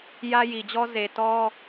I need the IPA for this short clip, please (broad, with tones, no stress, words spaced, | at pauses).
jä˦ji˨d͡ʑɔ˦ ze˨ tɔ˦